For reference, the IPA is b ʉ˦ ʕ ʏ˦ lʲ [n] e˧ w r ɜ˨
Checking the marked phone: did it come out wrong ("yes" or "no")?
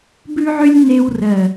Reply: no